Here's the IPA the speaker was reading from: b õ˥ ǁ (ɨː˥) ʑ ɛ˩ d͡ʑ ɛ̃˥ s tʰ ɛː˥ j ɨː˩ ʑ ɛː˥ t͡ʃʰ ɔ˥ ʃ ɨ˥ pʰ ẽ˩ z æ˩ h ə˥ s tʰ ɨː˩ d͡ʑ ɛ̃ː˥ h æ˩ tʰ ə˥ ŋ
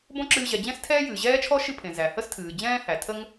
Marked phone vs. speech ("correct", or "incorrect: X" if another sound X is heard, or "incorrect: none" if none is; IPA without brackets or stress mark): incorrect: ɨː˧